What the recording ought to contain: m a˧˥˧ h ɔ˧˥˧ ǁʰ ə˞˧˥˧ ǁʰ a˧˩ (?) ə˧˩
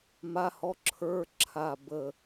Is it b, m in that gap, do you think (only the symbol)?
b